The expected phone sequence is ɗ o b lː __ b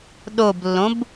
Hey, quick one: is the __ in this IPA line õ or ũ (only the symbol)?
õ